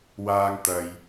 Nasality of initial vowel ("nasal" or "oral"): oral